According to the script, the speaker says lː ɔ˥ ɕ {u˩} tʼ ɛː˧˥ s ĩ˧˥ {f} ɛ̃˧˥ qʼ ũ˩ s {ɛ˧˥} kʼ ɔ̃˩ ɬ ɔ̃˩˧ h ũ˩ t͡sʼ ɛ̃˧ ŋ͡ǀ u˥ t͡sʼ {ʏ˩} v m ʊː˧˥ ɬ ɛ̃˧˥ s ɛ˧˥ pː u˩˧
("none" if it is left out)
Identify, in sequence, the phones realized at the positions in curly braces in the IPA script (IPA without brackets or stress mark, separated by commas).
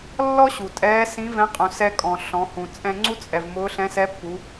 u˩, v, ɛ˧, ɛ˩